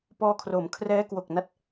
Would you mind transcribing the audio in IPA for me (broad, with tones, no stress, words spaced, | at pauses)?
pɔː˧kʰroː˩˦mkʰrɛː˦˥ kwo˨˩k̚na˦˥t̚